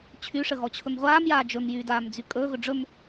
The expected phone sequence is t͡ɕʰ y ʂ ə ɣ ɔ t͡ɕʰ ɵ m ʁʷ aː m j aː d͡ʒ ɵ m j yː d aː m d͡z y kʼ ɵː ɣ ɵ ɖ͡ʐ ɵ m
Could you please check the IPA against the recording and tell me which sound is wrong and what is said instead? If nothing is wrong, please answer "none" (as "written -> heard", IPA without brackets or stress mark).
none